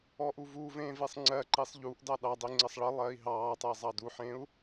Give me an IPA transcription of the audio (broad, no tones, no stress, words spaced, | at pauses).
ɔʔuvuːvẽː vesˤŋ͡ǀɜǃisˤ ʎuʔdɑ ɗɑdˤi ŋ͡ǀəsˤɭəlˠɜi̯ ɦɑːtˤəi̯ zˤɑduħẽu̯